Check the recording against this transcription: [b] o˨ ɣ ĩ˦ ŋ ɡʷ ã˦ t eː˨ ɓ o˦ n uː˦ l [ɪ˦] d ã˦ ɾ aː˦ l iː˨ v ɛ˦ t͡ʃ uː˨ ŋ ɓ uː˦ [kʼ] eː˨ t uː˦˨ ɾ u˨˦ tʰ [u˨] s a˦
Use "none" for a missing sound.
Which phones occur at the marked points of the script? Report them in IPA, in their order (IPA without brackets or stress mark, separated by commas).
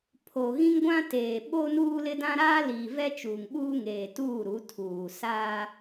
pʰ, ɪ˦, ŋ, uː˨